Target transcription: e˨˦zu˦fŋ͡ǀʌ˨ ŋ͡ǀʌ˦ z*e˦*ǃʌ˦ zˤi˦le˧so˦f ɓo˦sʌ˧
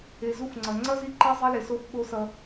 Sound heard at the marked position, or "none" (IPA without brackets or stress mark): i˦